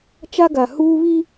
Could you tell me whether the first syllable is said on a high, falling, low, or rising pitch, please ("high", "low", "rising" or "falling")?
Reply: high